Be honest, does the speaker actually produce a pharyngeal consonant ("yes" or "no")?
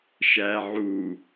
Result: yes